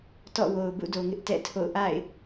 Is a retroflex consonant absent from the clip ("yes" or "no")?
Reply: yes